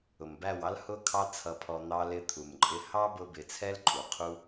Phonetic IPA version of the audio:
ʊ˨ m b æ˦˨ w ɑ˦ l h ʊ˧ kʰ ɑ˧ t͡sʰ ʌ˧ pʰ ɔ˧ n̪ ɑ˧ l ɪ˧ t̪ʰ u˨ m ǃʼ ɪ˧ h ɑ˦ b ʊ˧ b ɪ˨ t͡sʰ ɛ˦ l ǃʼ u˨ qʰ u˧

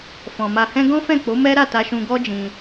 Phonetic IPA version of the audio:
f ɔ̃˨ m a˧ h ɛ̃˦ ɡ ɔ̃˦ f ɛ̃˦˨ k͡p o˨˦ m ɛ˦ ɾ a˦˨ t a˧ ʃ ũ˧ ɡ ɔ˦ d͡ʒ ĩ˧

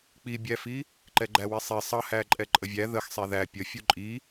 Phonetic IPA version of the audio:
k͡p i bʲ æ f i | ǃ ɛ ɡ͡ǃ æ w i sˤ i sˤ ʌ h æ ǃʼ ɛ ǃʼ ə vʲ æ ð ə x sˤ ɛ ð æ pʲ ə fʲ u ǃʼ i

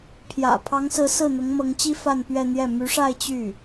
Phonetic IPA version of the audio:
pʰ j ä̰˨˩ pʰ ɑ˧˥ ŋ s ɹ̩˧˥ s ɹ̩˥˩ n̪ ʊ˧˥ ŋ m ɤ˧˥ ŋ t͡ɕ i˥ f a˥˧ n p ɥ ɛ˥˧ n̪ j ɛ˥˩ m y˧˥ ʂ a˥˧ ɪ̯ t͡ɕ y˥˩

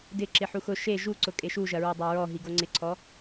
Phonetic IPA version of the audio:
d ɪ ǁ ɪ ħ u x ʊ ʃ e ʒ u ǀ ʊ kʼ e ʃ u ʒ ɐ ɹ ɔ dˤ a ɹ ɔ ɦ i ɡ o ŋ͡ǀ ɪ ǀʰ ɔ

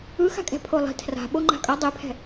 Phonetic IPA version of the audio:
ɯ x a̤ kʼ ɛ̤ pʰ o lˠ i̤ tʰ r a̤ ɓ o ŋ͡ǃ a̤ kʼ ʌ dˤ e pʰ ɛ̤

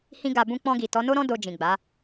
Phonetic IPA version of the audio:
h ĩ˧ ɡ a˨ b ũ˧ k͡p ɔ̃˧ ɡ i˨ t ɔ˨˦ n o˦ ɾ ɔ̃˦ d o˧ d͡ʒ ĩ˨ ɡ͡b a˨˦

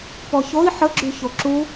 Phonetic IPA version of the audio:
p ɔ ç o i̯ ħ ə ɡ͡ǁ y ç o ǁ u

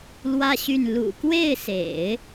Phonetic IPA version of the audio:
l w ä˥ ɕ y˥˩ n l ṵ˨˩ k w e˥˩ ɪ̯ s ḛ˨˩˦ ɪ̯

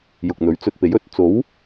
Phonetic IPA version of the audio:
j ʊ˨ k̚ n̪ ɵ˨˥ ɥ t͡s ɵ˧ t̚ p e˨˥ j ɵ˨˥ t̚ t͡s o˨˥ w

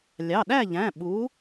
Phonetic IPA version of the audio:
lʲ ɑ˩˧˩ ɗ æ˥˨ ʎ æ̃˩˧˩ ɓ u˨˥

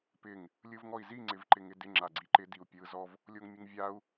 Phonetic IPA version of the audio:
p ɪ ŋ | lʲ ɯ v ŋ ɔ i̯ z i ŋ͡ǀ ɪ v ǃ ɪ ŋ ɪ d ɪ ŋ͡ǁ a ɡ͡ǀ i ǃ ɪ d i u̯ pʲ ɯ z ɔ v | lʲ o ŋ mʲ ɯ ŋ vʲ a u̯

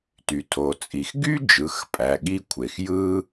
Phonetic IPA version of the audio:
t y˩ tʰ o˩ t͡sʼ i˩ x ɡ y˥ d͡ʒ ɯ˩˧˩ x pʼ æ˩˧˩ ɠ i˥ kʷʰ e˩ x j ɯ˥

